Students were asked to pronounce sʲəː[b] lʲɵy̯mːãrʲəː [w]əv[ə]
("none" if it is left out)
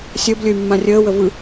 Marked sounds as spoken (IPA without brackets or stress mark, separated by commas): b, w, ɯ